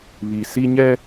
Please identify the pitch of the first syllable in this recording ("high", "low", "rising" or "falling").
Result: low